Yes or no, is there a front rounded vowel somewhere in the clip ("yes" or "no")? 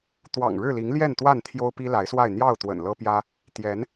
no